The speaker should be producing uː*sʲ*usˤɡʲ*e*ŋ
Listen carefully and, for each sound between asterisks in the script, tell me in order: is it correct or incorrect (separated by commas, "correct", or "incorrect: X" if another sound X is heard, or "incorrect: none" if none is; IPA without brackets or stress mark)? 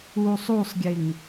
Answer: incorrect: sˤ, correct